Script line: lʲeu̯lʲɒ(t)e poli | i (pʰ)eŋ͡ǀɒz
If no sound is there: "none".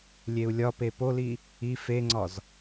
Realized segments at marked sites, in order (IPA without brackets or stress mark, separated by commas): p, f